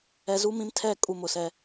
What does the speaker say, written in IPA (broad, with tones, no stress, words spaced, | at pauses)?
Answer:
ɛ˨zu˦mĩ˦mtʰɛ˦˨ kʼu˦mʊ˨sɛ˦